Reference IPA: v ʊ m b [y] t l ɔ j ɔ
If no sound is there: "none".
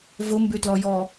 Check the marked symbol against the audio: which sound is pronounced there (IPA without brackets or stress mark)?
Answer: y